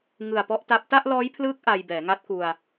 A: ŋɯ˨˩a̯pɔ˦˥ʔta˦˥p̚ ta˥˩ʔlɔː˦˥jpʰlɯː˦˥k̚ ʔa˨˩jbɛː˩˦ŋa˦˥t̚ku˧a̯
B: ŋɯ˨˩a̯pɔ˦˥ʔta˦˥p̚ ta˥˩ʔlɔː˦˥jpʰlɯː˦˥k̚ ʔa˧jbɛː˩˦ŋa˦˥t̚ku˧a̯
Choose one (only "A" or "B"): B